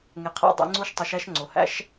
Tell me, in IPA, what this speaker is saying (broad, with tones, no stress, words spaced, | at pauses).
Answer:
ŋe˩qʰæ̰˧ dˤḭ˩˧ŋ͡ǀu˧˥ʃtˤu˩˧ʃ æ˧ʃ ŋ͡ǀo˩hæ̰˧˥ʃ